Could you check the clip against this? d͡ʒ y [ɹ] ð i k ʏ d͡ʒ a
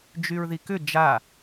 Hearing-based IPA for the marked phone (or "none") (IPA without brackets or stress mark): ɹ